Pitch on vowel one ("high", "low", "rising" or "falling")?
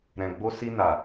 low